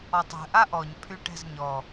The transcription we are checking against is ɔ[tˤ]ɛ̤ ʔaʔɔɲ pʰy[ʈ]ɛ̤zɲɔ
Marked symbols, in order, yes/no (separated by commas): yes, yes